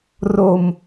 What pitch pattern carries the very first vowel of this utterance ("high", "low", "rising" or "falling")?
low